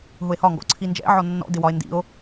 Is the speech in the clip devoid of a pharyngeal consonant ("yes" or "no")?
no